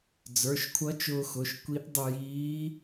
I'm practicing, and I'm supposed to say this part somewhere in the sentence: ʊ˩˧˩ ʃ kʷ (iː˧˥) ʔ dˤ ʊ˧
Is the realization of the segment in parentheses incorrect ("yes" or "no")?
yes